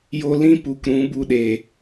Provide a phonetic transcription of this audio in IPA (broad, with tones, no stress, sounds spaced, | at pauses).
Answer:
j o˧ l ĩ˦ p u˨ k ɾ ũ˨˦ b u˧ ɗ e˨